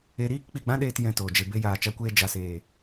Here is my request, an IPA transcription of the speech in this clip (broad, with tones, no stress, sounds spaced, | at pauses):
e˧ ɾ iː˦ k k͡p i˨ ɡ͡b ã˦ ɗ eː˧ t j ɛ̃˧ t oː˨ d͡ʒ e˧ b e˦ j aː˧ t͡ʃ a˧ kʷ eː˧ d͡ʒ a˨ s eː˨